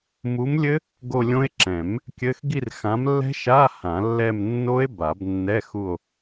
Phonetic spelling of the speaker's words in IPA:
m u˨˥ m lʲ ɘ˦˥ | ɡ o˦˨ lʲ õ˦˥ e̯ ǁ ɛ̃˨˩˦ m | kʲ ɘ˧˥˧ x ɡ i˦˨ r x ã˨˥ m lː ɛ̤˦˥ ʃ a˧˥˧ h ã˨˩˦ lː ɛ˦˨ m nː o˦˥ e̯ b a˨˩˦ b nː ɛ˧˥˧ x u˦˨ o̯

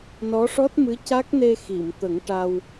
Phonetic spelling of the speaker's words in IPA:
n ɔ˧˥ ʂ ɔ˦˥ t̚ m ɨ˧˥ c a˦˥ k̚ n e˧ x i˨˩˨ m t̪ ə˨˩˦ ŋ ʈ a˧ w

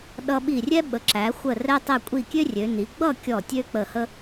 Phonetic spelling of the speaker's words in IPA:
ɗ ʌ˧ ɓ i˧˩ rʲ ɛ˥ ɓ ə˩˧ ǁ æ˩˧ xʷ ə˧˩ r ɛ˧ tˤ ɛ˧˩ kʷʼ i˧˩ kʲ ø˥ rʲ ø˩˧ n i˩˧ ɡ͡b ʌ˥˧ kʲ ɔ˧˩ tʲ ø˥ k͡p ə˧˩ h ə˥

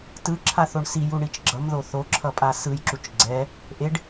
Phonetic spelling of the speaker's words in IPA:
t ɯ ǁʰ a θ o ɳ s i j u ɳ i t͡ʃ ɡ͡ǁ ʌ m ð o θ o ǁʰ ʌ pʼ a s ɯ j ǁ u t͡ʃ ɡ͡ǀ ɛ | ʔ e ɖ

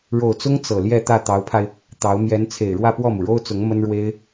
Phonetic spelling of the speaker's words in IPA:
ɻ o˨˩ ʊ̯ t͡s ʊ˥ ŋ t͡s ɤ˨˩ l j ɛ˥˧ t̪ ä˥˩ t̪ ɑ˧˥ ʊ̯ pʰ a˧ ɪ̯ | t̪ ɑ˧˥ ʊ̯ m j ɛ˧˥ n t͡sʰ e˨˩ ɪ̯ ɻ w ä˥˧ p w ɔ˥˩ m u˩ ɻ o˥ ʊ̯ t͡s ʊ˧˥ ŋ m ə˥ n ɻ w e˥ ɪ̯

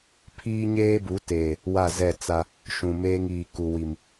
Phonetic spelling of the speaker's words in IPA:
pʰ iː˦ ɲ eː˦ b u˨˦ t eː˨ | w a˦˨ z ɛ˦˨ t͡s a˦ | ʃ ũ˨ m eː˦ ŋ iː˨ k u˨ w i˨ m

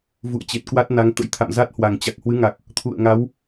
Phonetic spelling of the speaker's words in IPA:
v ṵ˧˨ ə̯ t͡ɕ e˨˩ t̚ k w a˦˥ t̚ n a˨˦ ŋ t̪ ə̰˧˥ j t̪ʰ a̰˧˨ m z a˦˥ t̚ h w a˨˩ ŋ t͡ɕ a˨˩ k̚ h w ɨ˨˦ ŋ a˨˩ k̚ | t̪ʰ ṵ˧˨ ə̯ ŋ a˨˦ w

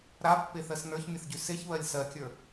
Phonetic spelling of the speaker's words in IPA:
ɾ a pː e θ ɜ s n ə˞ ç mʲ ə θ ɟ y s e ç β ɜ lʲ s ɜ kʲ ə˞

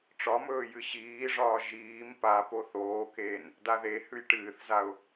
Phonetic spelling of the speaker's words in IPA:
ʈ͡ʂ ɒ m ɵː j ɨ ɕ iː ʐ ɒː ʒ iː m p a p o θ oː k eː n | d a ð e h ʉ j ʈ ɨː θ z a ʊ̯

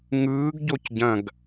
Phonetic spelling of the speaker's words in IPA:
ŋ ɯː ɡ ɟ o c ɟ ɐ̃ ɡ

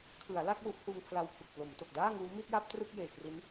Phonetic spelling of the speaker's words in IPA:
kʰ ɯ˩˦ a̯ l a˥˩ k̚ w u˦˥ ʔ h uː˧ ŋ pʰ l a˧ w pʰ u˨˩ k̚ p l o˩˦ m t o˨˩ k̚ d aː˥˩ ŋ uː˦˥ m i˥˩ t̚ j a˥˩ p̚ t r ɯ˥˩ k̚ j eː˨˩ k r i˦˥ n

